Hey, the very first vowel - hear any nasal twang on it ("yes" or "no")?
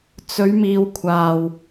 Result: no